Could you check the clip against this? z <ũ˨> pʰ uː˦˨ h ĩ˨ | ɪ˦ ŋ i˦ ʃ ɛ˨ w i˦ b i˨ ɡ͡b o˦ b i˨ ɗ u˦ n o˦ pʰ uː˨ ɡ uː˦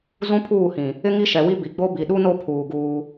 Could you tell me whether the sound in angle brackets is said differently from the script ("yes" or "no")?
yes